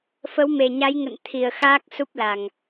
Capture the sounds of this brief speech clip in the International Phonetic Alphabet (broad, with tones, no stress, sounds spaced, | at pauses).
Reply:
f ə˨˦ w m e˨˩ ɲ a˨˦ j ŋ ə̰˧˨ n t̪ʰ i˨˩ ə̯ x aː˦˥ k̚ s u˦˥ p̚ l a˨˩ ŋ